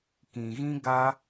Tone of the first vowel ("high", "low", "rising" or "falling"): low